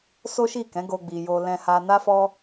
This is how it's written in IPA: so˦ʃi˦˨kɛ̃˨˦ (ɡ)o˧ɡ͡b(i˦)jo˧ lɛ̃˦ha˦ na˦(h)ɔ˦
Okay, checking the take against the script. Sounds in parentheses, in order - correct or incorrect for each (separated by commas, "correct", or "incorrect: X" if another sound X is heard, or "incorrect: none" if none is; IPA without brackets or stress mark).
correct, incorrect: i˨, incorrect: f